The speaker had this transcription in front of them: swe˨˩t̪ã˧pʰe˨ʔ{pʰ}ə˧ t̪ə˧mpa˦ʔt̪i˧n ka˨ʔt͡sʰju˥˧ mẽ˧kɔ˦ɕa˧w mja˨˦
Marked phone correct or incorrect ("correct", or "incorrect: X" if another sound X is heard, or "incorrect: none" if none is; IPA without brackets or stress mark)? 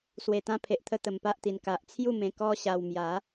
incorrect: t̪ʰ